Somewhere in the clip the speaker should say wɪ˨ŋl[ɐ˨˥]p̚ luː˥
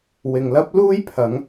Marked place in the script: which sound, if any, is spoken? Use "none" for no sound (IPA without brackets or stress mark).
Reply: ɐ˥